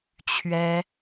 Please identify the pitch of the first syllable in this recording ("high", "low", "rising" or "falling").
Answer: high